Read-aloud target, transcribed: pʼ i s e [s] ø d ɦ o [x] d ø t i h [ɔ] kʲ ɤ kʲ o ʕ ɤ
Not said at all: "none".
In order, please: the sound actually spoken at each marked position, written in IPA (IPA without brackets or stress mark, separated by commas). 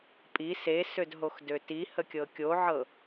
s, x, ə